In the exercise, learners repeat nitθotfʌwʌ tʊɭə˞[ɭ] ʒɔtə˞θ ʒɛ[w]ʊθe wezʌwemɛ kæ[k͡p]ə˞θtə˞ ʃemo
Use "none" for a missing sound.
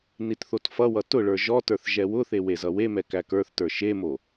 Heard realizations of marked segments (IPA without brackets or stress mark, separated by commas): none, w, k